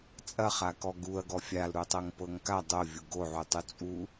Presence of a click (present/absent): absent